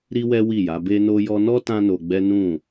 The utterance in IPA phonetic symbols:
ɾi˦wɛ˦wi˦˨ja˨˦ be˧no˧jɔ˧nɔ˦ tã˦no˧ɡ͡bɛ˦ nũ˦˨

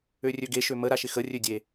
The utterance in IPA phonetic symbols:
ørʲøɡeʃø məɾa ʃɪxərʲø dʲe

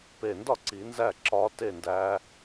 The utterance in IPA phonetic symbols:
pe˨˩ndɒ˥˩ ǀi˨˩˦nzæ˥˩ ǁɒ˨˦ te˥˩ndæ˨˦

